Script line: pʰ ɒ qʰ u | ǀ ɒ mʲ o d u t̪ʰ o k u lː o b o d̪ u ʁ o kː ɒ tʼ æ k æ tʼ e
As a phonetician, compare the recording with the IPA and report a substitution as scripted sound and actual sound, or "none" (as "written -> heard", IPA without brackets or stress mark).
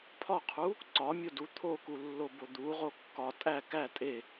none